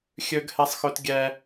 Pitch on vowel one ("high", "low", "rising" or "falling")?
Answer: high